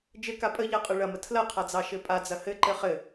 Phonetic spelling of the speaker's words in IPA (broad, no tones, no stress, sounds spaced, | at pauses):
d͡ʒ ɘ k a pʼ ə ʎ a qʼ ɯ ɭ ɐ m ə tʰ l ɐ qʰ a d͡z ɑ ʃ ɘ pʼ a d͡z ɐ h ɘ ǃ ɘ χ ɘ